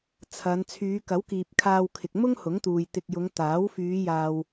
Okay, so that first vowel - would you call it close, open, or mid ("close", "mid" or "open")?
open